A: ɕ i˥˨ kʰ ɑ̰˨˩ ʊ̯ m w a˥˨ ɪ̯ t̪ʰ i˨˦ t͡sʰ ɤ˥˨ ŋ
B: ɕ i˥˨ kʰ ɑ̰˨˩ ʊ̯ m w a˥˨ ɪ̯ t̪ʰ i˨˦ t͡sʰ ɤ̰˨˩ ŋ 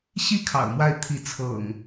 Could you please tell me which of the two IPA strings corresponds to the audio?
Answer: B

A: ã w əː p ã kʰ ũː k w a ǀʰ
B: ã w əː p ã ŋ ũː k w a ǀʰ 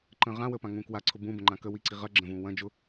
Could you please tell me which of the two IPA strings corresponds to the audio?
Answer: B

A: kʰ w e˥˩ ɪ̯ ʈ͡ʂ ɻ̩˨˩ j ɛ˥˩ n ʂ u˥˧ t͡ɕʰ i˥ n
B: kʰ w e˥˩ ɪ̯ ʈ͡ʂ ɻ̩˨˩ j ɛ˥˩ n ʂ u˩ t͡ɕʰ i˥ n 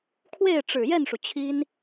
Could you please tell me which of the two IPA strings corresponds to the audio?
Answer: B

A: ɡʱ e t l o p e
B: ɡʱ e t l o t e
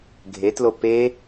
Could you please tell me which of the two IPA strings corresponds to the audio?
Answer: A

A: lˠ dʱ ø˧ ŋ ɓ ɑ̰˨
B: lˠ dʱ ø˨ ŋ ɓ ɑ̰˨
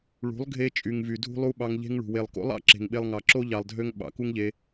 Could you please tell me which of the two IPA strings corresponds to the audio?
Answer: A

